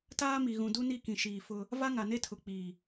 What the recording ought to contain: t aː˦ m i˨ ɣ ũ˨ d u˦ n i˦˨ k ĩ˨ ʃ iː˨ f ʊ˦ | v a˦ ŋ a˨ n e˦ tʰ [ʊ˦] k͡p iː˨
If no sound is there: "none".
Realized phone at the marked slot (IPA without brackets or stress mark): ʊ˨